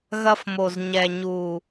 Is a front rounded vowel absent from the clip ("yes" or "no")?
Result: yes